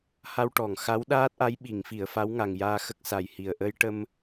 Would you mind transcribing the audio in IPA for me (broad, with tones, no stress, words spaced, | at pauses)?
ha˧wʈɔ˨˩˨ŋ xa˧˥wɗaː˦˥t̚ʔa˧˥j ɓi˨˩˨ŋfi˨˩˨ə̯ fa˧˥wŋa˨˩ŋ jaː˧xə˦˥k̚sa˨˩jhi˨˩ə̯ ʔə˧jʈə˧m